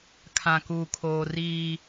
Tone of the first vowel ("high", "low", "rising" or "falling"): low